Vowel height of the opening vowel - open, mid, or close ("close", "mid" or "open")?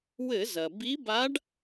mid